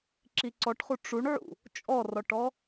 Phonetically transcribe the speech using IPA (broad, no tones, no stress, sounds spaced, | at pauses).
ǁ i ǀ ɔ ʈ χ u ʈ͡ʂ u ɳ ʕ ṵ | t͡ʃʼ ɔ r ɔ ʈ ɔ